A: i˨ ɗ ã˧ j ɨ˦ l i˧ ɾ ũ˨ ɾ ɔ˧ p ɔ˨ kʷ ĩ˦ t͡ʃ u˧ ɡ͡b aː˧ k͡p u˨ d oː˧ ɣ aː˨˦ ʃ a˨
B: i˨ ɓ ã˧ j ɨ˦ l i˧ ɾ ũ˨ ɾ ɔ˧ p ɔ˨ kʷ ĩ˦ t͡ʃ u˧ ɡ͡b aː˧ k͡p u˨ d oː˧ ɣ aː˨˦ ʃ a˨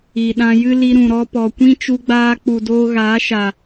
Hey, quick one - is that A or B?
A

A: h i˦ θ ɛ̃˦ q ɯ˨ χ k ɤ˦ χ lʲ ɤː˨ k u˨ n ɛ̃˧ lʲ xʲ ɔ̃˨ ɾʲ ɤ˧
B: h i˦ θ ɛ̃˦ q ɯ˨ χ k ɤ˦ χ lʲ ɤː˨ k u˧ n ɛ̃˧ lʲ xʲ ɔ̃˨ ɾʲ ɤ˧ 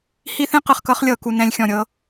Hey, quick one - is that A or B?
A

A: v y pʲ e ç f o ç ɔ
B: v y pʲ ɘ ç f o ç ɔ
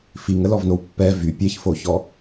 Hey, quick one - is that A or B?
A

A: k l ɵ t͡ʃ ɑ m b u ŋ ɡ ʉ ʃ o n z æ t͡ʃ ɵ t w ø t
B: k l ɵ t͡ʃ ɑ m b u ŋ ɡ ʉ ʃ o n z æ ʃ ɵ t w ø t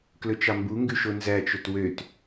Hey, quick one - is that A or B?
A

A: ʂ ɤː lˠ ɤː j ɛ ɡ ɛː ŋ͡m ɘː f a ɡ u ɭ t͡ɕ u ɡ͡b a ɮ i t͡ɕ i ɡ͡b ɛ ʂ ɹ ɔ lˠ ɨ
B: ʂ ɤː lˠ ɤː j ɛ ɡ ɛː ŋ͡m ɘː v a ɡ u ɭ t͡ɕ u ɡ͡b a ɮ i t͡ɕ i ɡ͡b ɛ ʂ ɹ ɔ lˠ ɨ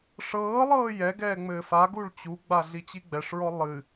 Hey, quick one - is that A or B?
A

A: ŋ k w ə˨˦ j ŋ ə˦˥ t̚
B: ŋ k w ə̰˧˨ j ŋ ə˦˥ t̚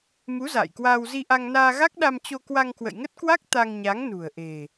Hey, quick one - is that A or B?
B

